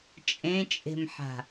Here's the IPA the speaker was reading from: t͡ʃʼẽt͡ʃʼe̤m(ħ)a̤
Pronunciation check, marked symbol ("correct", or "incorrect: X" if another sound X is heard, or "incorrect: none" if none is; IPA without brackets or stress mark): correct